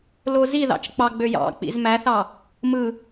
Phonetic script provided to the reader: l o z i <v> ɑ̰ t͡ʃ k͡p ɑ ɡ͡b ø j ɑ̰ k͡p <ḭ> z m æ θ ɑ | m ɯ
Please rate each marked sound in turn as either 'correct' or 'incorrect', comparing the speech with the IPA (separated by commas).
incorrect, correct